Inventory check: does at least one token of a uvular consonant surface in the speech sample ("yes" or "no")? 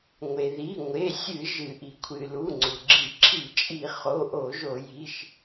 yes